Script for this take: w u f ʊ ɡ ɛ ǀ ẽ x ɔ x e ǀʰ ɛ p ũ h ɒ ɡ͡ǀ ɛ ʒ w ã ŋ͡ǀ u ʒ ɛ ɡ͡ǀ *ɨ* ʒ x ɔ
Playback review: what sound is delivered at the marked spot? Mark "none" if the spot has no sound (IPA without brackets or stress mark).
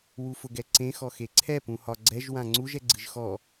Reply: ɨ